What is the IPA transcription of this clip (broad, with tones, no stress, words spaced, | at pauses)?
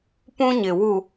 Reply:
pũ˦ɲɪ˨wu˨